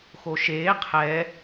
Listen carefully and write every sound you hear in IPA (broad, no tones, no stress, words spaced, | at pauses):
xoʃeː qʰɛ